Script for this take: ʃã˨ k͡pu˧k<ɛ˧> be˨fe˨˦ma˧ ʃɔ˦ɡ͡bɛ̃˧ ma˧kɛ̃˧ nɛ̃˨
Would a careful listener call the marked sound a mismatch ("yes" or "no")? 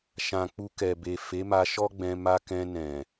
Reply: yes